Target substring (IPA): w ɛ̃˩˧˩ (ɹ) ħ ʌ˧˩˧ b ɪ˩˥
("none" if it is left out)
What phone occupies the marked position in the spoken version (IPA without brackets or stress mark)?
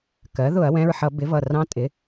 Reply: ɹ